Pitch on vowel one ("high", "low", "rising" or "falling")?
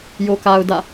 low